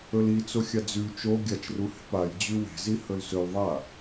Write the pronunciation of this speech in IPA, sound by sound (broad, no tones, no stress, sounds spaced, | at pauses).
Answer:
ɵ l i t͡s o xʲ a d͡z ʉ t͡ʃ o ɡʲ a t͡ʃ r u h e̤ p a j d͡ʑ ʉ w e̤ z i h ɵ l s ɵ l ðˤ a